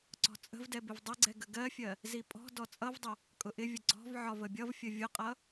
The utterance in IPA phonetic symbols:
ǀɔ̤t͡sʼə̤vdɛ bɪvdˤɪɡ͡ǀɛ ɡəɡɜfʲɜ | zipʼɔ̤dɔ t͡sʼʌvdˤʌ | kʼʊʔɪvʲə ɡ͡ǀɔ̤vʕɒv əbʲʌvfʲə vʲʊqʼʌ

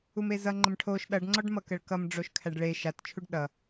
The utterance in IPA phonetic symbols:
umezʌ ŋ͡ǃəmʈʰoʃ ɗʌɖ ŋ͡ǀɔɖmʌkəɭkʌm ɖ͡ʐoʃkʰæɖɭe ʃat t͡ʃʰuɖɗʌ

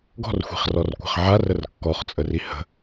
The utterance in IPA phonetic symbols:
ɡɔ̤rxʷi̤χrɔrkʷa̤χ ʕarər kːɔχt͡sʼəri hə̤

